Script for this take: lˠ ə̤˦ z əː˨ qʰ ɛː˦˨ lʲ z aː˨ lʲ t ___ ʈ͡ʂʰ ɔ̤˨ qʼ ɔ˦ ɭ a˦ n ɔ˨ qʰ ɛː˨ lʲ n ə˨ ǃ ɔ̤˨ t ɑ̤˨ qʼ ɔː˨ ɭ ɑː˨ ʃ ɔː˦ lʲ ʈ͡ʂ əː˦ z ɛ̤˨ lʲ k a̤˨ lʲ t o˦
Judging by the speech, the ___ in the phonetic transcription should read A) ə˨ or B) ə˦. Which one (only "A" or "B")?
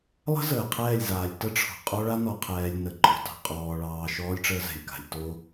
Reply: B